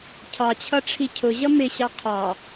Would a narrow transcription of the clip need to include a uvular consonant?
yes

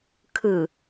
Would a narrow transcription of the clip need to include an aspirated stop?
yes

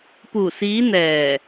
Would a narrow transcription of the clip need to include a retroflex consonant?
no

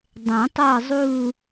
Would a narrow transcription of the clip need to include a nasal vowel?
yes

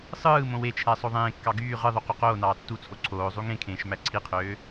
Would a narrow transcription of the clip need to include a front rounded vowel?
yes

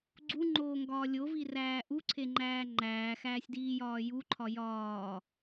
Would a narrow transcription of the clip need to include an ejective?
no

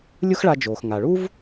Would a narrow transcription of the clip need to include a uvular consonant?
no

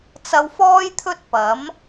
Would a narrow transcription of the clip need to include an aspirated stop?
yes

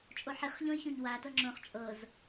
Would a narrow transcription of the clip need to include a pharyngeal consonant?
yes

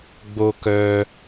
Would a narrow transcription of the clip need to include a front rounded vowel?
yes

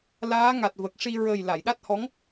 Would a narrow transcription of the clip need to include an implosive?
yes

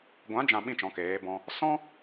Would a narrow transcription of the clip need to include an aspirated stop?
no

